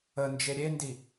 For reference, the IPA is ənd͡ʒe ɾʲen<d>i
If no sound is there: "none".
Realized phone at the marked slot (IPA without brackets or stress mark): d